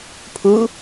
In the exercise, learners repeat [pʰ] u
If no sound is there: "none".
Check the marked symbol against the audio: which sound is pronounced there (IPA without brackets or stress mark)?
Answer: pʰ